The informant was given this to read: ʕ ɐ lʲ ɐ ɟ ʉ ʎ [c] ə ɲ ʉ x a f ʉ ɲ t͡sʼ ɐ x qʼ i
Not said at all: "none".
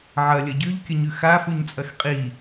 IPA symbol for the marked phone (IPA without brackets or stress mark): kʲ